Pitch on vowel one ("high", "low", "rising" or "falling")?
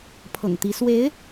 low